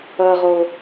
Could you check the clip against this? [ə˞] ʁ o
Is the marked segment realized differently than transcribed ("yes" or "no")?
yes